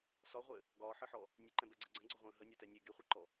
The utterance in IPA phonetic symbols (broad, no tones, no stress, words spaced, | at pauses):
sɒʁʷɘ | ɡɒːħəħɔ | nʲəǃɛ̃bɛɡ͡ǀɛ ɡ͡ǀə̃ɡ͡ǀɔʁʷə̃ː ɦənʲɒtɛ nʲe ɡeχʷeǃɔ